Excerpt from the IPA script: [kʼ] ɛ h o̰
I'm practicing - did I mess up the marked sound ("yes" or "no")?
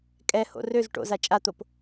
no